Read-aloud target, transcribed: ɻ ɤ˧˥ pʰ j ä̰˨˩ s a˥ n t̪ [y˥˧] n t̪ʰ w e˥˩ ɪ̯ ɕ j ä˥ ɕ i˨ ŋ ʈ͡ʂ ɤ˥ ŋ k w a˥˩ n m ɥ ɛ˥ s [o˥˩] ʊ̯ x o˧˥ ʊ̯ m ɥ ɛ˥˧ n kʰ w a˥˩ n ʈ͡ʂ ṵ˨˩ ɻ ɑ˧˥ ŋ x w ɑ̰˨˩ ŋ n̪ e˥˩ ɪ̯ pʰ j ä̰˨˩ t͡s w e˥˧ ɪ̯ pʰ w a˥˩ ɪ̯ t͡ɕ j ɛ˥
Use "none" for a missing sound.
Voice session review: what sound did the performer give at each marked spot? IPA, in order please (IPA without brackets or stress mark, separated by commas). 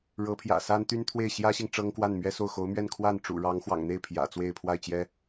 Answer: y˥, o˥˩